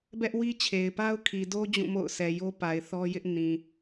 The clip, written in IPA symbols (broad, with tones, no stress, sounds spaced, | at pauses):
b ɛ˦ ʔ w i˦ t͡ɕʰ e˨ ɪ̯ p a˦ ʊ̯ kʰ i˨ d o˦ d͡ʑ ũ˦˨ m o̰˦˨ ʊ̯ s ɛ˨ j o˦ p a˨ ɪ̯ θ ɔ˦ j ɪ˦ ʔ n ĩ˨